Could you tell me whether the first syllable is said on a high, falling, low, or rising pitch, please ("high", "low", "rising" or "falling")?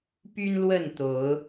high